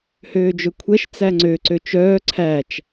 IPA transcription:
høːd͡ʒɵkʷʰɛʃ t͡sæŋ͡ǀø ǀøt͡ʃœː ǀʰæt͡ʃ

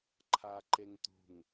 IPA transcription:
ǃʰaǃeŋtṳŋ

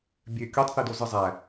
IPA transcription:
bʲø kʲotˤθidozɯ zˤæ

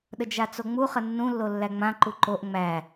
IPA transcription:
ɗəd͡ʒat͡soŋ͡mu χənːũ lːolːæŋ͡mã ǃuǃoʔ ŋ͡mæ

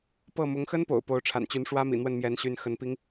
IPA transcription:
pɤ˥˩mʊ˧˥ŋ xə˥n po̰˨˩ʊ̯po˧˥ʊ̯ʈ͡ʂʰa̰˨˩nt͡ɕy˧˥n ʂwä˥mḭ˨˩ n̪wə˥˩nmjɛ˧˥nɕy˧˥n xə˧˥npi˥ŋ

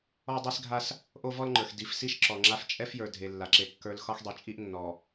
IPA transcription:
ɔ˦dˤi˦sɡʱa˦s | ʔo˦vɔ˦lŋ͡ǃə˞˨x di˨fsi˦ʃ ǁɔ˨ŋ͡ǁa˦f t͡ʃʼɛ˦fjə˞˨ dʱe˨lːa˨ǁe˨ kːə˞˨l xɒ˦xdˤe˨t͡ʃʼi˦ʔ nːɔ˨

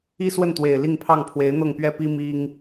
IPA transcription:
i˥swə˥˩nt̪we˨˩ɪ̯ li˥˧ŋpʰɑ˥˩ŋ pʰwe˧˥ɪ̯n̪ɤ˥˩ŋpɥɛ˥pi˥ mi˥ŋ

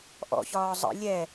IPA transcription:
ʔɔ̰çɒː zˤə̰ lʲɛ

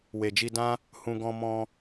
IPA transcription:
we˨d͡ʒi˧dã˦ | hũ˧ ɡɔ̃˧mɔ̃˧

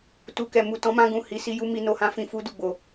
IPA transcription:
tu˨kɛ˨ mu˨tɔ̃˨˦mã˧ɡũ˨ hi˨˦ si˧ ju˧ mi˧no˧hã˦ fĩ˧fu˧du˨ ɡ͡bo˨

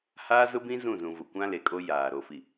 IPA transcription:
haː˦zʊ˦bĩ˦ zũ˦˨zũ˨vʊ˨ kʷã˦le˨kʼo˦ jaː˨ ɾo˨fi˨

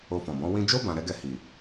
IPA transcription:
o˧fɔ̃˨bɔ̃˨˦ wĩ˧d͡ʒo˦ bã˧ɾɛ˦ɡɛ˦˨ hi˨

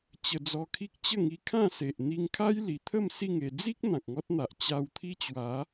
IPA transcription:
t͡ɕə˧d͡zɔ˧kʰi˦k̚ t͡ɕə˥˧ŋi˧kʰã˥˧se˨ʔ n̪i˧ŋkʰa˦j li˨˩t̪ʰə˥˧m si˥˧ŋe˧ d͡zi˦k̚ n̪ã˨k̚ŋɔ˦t̚n̪a˨ʔ t͡ɕa˧wt̪ʰi˦t͡ɕwa˨˦

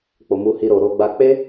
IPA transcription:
k͡po˨mu˧hi˧ ɾo˨ ɾo˧ɡ͡ba˧ k͡pe˦

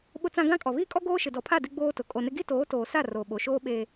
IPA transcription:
ɓʊ˦t͡sã˦ ɡã˦kʼɔ˨ βiː˦kʼɔ˦ ɡoː˦ʃɪ˨dɔ˨pʰa˦˨ dɪ˦ɡ͡boː˦tʊ˨ kʼo˨nɪ˦ ɡi˦toː˨˦toː˨sa˦˨ ro˨ ɓo˨ʃoː˦ ɓeː˦

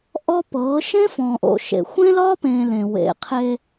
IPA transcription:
ʔɔ˦pɤː˨˦ ʃẽ˦fɔ̃ː˨ʔo̰˨ ʃḛ˨ xʷẽ˦lɒː˦pẽː˨ lẽ˨ wḛ˨qʰe˦

